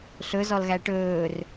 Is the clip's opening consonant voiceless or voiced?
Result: voiceless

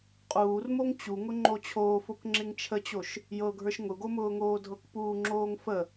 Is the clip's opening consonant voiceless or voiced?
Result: voiceless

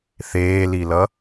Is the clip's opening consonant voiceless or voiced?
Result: voiceless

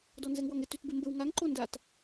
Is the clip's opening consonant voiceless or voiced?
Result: voiced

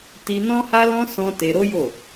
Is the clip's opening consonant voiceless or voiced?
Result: voiceless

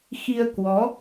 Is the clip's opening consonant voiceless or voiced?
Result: voiceless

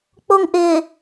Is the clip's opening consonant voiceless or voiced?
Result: voiceless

